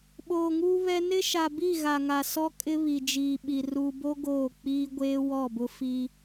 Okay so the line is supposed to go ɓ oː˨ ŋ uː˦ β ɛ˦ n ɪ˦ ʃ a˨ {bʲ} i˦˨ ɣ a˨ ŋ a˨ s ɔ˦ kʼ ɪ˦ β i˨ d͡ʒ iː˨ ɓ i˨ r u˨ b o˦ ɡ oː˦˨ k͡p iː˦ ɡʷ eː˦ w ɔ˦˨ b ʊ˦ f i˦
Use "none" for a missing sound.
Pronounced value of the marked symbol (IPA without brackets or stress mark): b